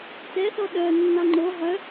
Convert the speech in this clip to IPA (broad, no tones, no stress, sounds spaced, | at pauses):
t ɛ θ ɔ ɗ œ nː ɑ ŋ͡ǃ o ʁ œ